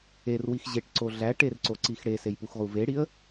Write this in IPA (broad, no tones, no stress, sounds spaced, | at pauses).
e r w i x ʑ e ʈ ǀ o ɮ æ ʈ e r ǀ o ǀ i x ɽ e s e j p u x ʁ u v e ɽ i ə̯